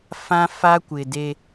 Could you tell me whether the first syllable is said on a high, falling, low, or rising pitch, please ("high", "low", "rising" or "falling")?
high